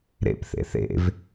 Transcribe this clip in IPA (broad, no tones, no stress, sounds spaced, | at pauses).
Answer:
ɾ ḛ p θ ḛ θ ḛ v